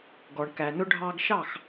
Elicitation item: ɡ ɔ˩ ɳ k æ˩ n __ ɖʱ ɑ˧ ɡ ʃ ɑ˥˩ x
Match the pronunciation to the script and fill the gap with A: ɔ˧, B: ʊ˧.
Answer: B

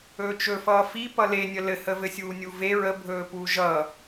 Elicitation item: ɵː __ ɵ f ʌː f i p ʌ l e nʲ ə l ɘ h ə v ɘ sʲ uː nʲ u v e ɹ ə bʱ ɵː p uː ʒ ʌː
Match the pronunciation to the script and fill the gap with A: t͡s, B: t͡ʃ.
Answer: B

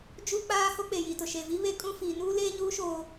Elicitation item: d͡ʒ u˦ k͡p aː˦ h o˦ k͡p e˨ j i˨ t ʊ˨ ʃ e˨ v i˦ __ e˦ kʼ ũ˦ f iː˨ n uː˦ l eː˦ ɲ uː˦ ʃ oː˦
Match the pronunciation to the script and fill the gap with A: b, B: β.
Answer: B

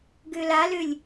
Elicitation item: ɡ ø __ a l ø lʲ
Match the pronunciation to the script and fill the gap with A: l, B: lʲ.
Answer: A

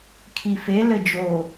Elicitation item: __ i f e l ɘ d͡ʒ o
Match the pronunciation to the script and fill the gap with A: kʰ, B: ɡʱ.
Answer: A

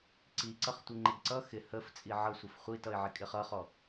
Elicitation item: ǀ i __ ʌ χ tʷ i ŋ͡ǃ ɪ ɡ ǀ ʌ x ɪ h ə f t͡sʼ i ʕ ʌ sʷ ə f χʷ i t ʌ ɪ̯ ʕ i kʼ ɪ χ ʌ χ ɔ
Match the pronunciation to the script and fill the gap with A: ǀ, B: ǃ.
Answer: A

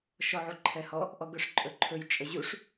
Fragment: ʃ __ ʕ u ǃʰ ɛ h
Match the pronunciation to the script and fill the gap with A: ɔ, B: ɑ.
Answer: A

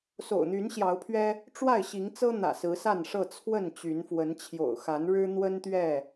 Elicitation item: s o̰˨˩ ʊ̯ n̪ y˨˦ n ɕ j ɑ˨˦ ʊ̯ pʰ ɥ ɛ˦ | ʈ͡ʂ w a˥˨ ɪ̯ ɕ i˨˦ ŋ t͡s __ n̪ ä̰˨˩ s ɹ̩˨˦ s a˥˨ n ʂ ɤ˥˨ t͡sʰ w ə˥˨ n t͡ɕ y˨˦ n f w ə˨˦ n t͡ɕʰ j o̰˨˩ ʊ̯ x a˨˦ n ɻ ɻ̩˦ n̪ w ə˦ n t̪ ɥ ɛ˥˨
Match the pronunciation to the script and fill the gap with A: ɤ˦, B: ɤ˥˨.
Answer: A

